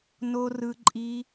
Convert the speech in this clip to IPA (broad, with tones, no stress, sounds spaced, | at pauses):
n o˧ r ɯ˧ ǃʼ i˧